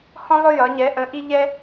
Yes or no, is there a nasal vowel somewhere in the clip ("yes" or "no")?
yes